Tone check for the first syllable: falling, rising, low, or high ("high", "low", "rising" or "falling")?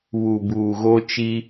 low